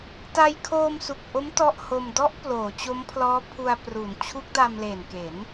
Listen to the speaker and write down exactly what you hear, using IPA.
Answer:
t a˧ j kʰ oː˧ m s u˨˩ k̚ ʔ o˦˥ m t ɔ˥˩ ʔ h o˧ m d ɔ˦˥ ʔ p l oː˩˦ t͡ɕ o˦˥ m pʰ l ɔː˦˥ pʰ u˧ a̯ p r u˩˦ n t͡ɕʰ u˦˥ k̚ d a˧ m l e˨˩ n k e˩˦ n

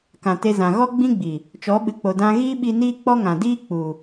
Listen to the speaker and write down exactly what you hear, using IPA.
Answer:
k ã˨ t e˧ z ã˨ ɣ ɔ˦ ɡ͡b ĩ˦ ɡ͡b i˨ | t͡ʃ ɔ˨˦ ɓ ɨ˨ k͡p o˨ d ã˧ ɣ iː˦ ɓ i˧ n iː˦ k͡p ɔ˦ ŋ ã˨ d iː˦ k͡p u˨

